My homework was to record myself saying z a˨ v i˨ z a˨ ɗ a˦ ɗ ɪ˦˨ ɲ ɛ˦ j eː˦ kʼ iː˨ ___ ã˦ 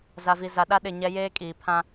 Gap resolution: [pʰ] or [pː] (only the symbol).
pʰ